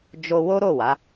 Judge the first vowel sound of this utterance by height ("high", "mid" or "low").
mid